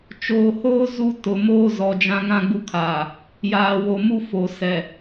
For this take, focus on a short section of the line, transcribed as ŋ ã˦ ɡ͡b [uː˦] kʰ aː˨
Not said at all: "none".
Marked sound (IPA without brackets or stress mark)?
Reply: u˦